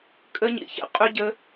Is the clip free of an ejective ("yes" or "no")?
no